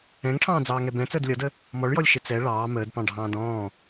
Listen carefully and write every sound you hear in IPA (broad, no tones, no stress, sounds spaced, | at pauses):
ɛ̃ ŋ ʈʰ ɑ̃ː d͡z ɑː ŋ ɛ b ɛ̃ t͡s əː d lʲ ʌ d ə | m ɔ ɭ j ɔ lʲ ʃ ɪ t͡s ɛ ɭ ɑː m əː d p ɑ̃ ɖʱ ɑ̃ː d ɔ̃ː